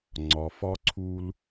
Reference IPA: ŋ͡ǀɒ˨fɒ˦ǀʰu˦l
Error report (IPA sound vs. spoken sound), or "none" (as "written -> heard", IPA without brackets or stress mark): none